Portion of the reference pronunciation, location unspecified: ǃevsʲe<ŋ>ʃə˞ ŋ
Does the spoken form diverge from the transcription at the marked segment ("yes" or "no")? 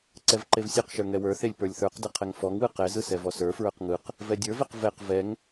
yes